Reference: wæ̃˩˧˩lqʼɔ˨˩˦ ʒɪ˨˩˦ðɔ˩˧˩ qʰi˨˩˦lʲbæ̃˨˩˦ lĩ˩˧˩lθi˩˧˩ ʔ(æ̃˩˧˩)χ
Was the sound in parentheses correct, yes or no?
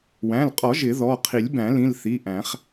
no